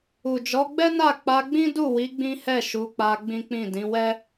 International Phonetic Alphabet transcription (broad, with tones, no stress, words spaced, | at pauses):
u˨d͡ʒɔ˨˦ɡ͡bɛ˦na˦˨ k͡pa˧ɡ͡bĩ˦du˦˨wi˨˦ ɡ͡bĩ˦hɛ˦˨ʃu˨˦k͡pa˧ ɡ͡bĩ˦k͡pĩ˦˨ dĩ˨˦wɛ˦